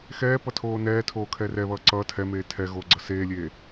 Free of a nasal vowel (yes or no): yes